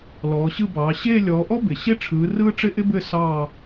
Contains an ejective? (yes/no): no